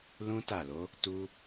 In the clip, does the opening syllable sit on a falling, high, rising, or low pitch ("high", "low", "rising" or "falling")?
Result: high